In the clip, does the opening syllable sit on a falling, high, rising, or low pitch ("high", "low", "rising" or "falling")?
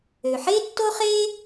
low